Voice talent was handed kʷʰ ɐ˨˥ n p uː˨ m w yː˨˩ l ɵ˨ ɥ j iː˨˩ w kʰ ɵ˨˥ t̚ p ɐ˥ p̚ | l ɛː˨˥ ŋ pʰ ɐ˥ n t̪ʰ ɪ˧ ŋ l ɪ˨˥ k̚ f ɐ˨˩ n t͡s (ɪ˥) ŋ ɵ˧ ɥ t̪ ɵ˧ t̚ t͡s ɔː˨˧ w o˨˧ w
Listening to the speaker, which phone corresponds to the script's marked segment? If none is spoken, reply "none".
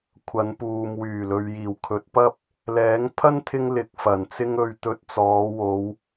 ɪ˥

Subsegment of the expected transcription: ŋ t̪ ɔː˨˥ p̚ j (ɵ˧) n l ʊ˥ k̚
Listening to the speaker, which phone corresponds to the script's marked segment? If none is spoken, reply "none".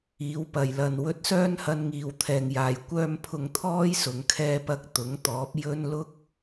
ɵ˥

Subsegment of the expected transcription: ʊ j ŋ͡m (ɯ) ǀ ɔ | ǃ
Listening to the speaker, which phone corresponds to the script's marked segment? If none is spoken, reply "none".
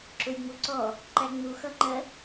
u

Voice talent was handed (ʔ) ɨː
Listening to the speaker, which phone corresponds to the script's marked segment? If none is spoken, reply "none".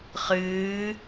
χ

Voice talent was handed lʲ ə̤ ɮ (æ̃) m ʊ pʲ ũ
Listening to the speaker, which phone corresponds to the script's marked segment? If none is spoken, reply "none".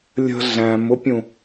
æ̃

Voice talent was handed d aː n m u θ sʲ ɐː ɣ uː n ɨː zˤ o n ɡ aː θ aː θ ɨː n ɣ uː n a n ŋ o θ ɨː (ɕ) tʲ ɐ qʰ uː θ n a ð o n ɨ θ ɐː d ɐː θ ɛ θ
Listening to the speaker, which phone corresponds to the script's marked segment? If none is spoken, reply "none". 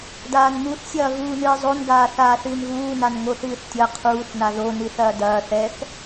θ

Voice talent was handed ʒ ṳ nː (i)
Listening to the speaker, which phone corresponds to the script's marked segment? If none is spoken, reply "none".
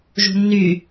y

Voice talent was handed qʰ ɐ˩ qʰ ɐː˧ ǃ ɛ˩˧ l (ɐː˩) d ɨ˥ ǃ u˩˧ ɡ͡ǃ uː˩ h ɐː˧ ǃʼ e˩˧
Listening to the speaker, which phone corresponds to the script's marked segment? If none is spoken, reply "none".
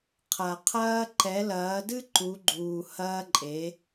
ɐː˩˧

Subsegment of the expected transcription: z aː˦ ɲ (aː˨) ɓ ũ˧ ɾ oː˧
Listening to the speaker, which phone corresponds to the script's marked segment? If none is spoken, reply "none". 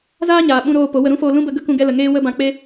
aː˨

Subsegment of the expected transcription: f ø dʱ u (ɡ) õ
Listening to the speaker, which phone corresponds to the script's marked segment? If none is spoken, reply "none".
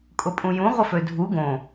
ɡ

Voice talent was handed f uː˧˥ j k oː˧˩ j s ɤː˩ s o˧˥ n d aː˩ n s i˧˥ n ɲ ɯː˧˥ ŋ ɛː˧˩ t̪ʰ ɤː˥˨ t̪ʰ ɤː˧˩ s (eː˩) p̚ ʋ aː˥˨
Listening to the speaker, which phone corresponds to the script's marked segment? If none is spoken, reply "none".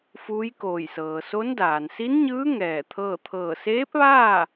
eː˧˥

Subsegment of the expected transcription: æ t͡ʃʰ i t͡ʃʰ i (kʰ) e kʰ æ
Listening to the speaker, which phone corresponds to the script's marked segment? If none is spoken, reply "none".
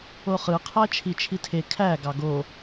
tʰ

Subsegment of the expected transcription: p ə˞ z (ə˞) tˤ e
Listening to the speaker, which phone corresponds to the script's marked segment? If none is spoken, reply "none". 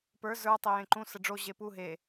ə˞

